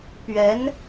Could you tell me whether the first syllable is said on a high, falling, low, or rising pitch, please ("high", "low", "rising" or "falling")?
rising